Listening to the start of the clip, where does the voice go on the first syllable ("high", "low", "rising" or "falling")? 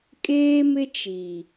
high